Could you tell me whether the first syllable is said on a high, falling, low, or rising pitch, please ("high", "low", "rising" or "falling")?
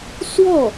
falling